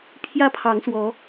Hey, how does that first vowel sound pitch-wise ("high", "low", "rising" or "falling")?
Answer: high